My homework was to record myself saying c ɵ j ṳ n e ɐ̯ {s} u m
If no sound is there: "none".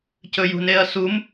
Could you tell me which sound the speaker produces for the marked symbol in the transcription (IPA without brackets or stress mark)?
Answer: s